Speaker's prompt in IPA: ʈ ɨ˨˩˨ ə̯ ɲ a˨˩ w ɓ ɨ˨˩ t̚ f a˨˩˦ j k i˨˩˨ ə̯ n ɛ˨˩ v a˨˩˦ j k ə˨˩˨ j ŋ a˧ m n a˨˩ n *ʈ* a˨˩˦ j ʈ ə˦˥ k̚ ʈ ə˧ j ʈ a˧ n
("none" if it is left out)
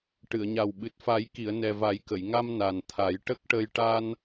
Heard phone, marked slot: t̪ʰ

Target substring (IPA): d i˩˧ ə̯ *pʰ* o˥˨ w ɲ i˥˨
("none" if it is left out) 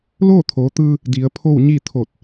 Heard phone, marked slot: pʰ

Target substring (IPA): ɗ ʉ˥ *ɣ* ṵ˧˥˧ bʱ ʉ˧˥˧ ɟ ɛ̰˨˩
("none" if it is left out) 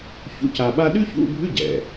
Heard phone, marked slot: ç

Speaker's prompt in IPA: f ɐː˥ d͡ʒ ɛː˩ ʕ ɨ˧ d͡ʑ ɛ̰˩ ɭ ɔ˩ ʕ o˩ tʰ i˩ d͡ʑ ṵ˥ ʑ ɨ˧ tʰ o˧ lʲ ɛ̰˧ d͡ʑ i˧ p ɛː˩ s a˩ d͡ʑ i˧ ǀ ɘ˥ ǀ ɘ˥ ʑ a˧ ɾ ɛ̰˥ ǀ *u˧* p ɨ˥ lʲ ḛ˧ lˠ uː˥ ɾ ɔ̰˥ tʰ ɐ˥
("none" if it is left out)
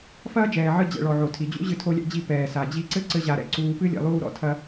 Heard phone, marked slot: uː˧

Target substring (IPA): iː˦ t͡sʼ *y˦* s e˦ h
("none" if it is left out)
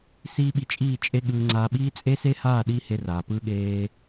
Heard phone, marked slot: e˦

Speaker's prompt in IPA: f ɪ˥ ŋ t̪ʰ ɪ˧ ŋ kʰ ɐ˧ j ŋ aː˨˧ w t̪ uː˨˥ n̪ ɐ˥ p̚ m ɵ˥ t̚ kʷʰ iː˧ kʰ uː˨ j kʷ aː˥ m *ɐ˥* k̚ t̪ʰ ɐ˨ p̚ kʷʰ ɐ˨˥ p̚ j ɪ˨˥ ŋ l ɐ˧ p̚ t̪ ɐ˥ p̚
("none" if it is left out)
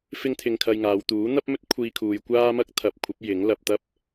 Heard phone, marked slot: ɐ˥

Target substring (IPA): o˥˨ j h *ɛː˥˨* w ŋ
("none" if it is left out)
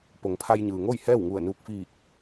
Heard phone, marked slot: ɛː˥˨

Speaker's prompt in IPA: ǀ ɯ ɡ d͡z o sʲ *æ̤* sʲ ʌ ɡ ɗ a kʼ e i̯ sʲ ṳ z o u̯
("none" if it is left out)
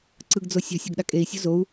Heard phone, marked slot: a̤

